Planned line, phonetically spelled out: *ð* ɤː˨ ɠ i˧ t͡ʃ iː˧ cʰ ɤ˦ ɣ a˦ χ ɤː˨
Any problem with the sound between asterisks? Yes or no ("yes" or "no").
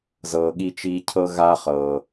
yes